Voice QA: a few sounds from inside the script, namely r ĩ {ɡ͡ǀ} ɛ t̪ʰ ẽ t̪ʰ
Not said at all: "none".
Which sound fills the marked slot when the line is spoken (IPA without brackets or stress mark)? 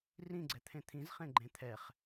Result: ɡ͡ǀ